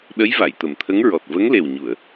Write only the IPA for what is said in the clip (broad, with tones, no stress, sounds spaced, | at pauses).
ɗ ə˧˥ j v a˨˩˨ j t̪ ə˨˩ m t̪ʰ ə˧˥ ŋ ɹ ɔ˨˩ t̚ v ə˧˥ ŋ l e˨˩ w ɲ u˨˩˨ ə̯